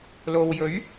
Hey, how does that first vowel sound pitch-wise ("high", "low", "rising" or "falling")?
low